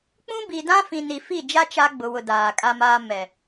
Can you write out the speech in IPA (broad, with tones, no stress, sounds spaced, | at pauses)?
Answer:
k͡p ũ˦ b i˨ d ã˦ f ĩ˨ n i˨ f i˦˨ d͡ʒ a˦ t͡ʃ a˦ ɡ͡b ʊ˨ w ʊ˨ d aː˨ kʼ a˦ m aː˦ m ɛ˨